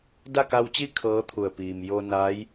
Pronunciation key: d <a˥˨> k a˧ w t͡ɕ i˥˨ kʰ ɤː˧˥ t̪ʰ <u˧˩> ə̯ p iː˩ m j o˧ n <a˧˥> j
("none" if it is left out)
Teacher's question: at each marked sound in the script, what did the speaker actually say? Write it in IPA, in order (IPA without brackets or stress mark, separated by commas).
a˥˨, u˧˩, a˧˥